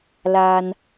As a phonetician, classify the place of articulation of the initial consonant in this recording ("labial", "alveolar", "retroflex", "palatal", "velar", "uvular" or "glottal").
alveolar